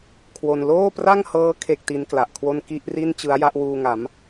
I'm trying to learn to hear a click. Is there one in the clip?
no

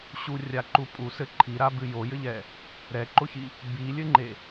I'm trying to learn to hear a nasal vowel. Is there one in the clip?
no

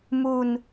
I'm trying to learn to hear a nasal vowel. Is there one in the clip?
no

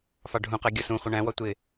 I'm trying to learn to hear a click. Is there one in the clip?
no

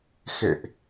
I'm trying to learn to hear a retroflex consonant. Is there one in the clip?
no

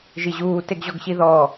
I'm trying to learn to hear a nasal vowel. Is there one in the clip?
no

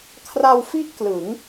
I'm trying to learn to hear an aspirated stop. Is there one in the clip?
yes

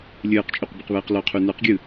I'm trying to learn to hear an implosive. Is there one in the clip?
no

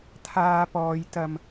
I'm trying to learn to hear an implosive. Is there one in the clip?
no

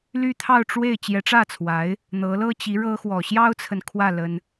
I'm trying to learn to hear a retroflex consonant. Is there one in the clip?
yes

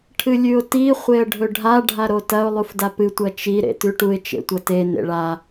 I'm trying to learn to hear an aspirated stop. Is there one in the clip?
yes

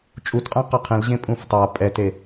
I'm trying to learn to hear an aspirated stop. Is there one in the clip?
yes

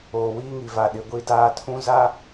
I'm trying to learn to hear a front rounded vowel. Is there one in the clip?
no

